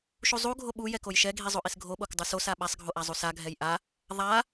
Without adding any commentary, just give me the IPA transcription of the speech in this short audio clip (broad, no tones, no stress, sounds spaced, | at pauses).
ʃ u zˤ u ɡʱ o ɓ u j ɛ k o j ʃ ɛ ɡʱ i zˤ o ʔ i s ɡʱ o ɓ o k dˤ u s o s a ɓ a sˤ ɡʱ o ʔ a zˤ u s a ɡʱ ɛ j ʔ a | ðˤ a